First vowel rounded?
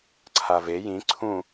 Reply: no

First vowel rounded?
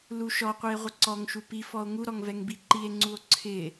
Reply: yes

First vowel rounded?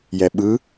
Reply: no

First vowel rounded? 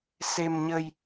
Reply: no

